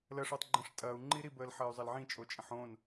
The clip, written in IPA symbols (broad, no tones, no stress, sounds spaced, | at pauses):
l ə ʂ o tˤ ɡ͡ǃ ə̃ ʂ tʼ ɐː u̯ ŋ͡ǃ i ɾ i b əː l ħ ɐː y̯ zˤ ɐ l ʕ ĩ t͡ʃʼ o t͡ʃʼ ə̃ ħ õ n